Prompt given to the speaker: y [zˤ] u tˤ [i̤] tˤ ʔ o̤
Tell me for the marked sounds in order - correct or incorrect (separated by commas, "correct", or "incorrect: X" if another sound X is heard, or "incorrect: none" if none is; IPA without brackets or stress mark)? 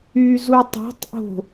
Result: incorrect: z, incorrect: e̤